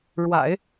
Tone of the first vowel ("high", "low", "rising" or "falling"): low